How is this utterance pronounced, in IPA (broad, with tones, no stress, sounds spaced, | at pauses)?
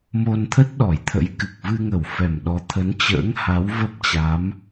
m o˧ n t̪ʰ ə˦˥ t̚ ɗ ɔ˧˩ j t̪ʰ ə̰˧˥ j k ɨ˨˩ k̚ v ɨ˧ ŋ ə˧˩ w f ɛ˨˩ m ɗ ɔ˨˦ t̪ʰ ə˨˦ n t͡ɕ ə̰ː˧˥ ŋ h a˨˦ w v ə˦˥ p̚ t͡ɕ a˨˦ m